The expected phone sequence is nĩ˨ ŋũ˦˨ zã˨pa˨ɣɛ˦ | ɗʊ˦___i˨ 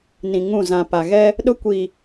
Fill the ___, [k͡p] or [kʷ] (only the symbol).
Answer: kʷ